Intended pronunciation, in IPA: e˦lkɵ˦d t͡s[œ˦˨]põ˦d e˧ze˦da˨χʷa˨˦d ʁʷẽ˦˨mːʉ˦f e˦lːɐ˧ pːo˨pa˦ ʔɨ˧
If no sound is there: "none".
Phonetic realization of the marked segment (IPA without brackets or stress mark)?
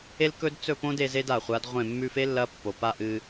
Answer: ɵ˦˨